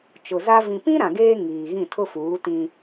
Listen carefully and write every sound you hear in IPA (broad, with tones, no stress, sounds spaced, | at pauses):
t͡ʃ ʊ˨ z a˦ v ĩ˨ p ĩ˦ ɾ ã˨ ɡ eː˦ ŋ iː˨ ɣ ĩ˦˨ tʰ ʊ˦ f uː˨˦ t ĩ˦